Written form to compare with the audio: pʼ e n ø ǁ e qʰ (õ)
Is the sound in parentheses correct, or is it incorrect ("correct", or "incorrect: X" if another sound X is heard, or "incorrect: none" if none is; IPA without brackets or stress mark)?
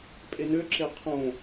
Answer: correct